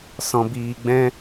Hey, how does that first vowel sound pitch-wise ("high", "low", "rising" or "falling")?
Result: low